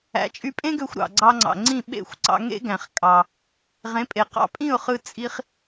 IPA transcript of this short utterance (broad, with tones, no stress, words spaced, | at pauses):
æ̰˩˥t͡ʃʼy˧pʼẽ˥ɡø˧xʷ ɾɑ̰˩ɡ͡ǀɑ˧ŋ͡ǀɑ̰˩ ŋ͡ǀĩ˥˩ ɓḛ˥˩xʷ ǀɑ̰˧ŋḛ˥ɡæ̃˩χ kʼɑ˩ | ʁẽ˩˥pʼe˩ qɑ̰˧pʼĩ˥˩ʊ̯χɯ˧ t͡sʼi˧χ